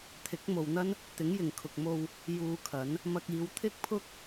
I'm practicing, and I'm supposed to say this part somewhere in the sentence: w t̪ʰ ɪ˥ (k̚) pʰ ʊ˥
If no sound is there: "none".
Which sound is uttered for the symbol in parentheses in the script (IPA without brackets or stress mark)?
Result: k̚